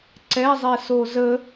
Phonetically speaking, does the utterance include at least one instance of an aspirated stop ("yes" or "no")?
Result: no